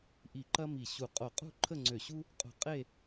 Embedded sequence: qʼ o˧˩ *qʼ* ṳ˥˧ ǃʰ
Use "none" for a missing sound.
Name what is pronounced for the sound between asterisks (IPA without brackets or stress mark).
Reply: qʼ